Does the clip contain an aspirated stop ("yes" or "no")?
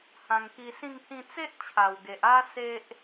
yes